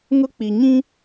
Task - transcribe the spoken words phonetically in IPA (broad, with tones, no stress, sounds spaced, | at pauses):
ŋ ʊ˦ k͡p i˨ ɲ ĩ˦